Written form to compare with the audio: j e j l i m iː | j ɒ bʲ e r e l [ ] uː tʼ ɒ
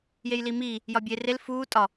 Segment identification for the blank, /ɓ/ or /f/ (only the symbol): f